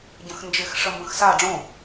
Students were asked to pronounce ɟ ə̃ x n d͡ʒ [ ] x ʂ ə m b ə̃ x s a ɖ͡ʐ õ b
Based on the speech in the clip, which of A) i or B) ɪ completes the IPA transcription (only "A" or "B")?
B